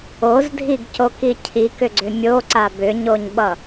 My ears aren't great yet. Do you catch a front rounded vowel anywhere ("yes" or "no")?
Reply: yes